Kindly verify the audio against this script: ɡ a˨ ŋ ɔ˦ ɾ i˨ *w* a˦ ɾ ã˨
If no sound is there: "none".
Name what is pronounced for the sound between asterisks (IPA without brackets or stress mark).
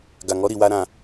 w